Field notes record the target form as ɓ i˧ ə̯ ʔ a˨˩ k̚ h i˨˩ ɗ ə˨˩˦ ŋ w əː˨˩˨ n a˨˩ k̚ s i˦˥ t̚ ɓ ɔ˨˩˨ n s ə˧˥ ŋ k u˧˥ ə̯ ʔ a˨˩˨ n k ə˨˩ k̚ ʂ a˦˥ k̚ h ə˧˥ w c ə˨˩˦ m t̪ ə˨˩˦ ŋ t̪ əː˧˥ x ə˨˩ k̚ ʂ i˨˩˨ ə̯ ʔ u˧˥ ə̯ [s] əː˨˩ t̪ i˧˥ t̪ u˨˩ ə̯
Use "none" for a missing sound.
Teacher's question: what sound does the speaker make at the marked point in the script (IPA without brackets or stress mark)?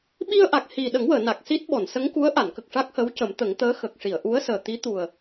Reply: s